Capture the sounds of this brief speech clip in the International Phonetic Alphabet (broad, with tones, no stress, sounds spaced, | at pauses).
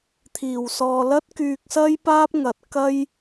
t̪ʰ iː˨˩ w s ɔː˨ l ɐ˥ t̚ k yː˧ k̚ s ɐ˥ j p aː˥ p̚ ŋ ɐ˨˥ t̚ k ɐ˥ j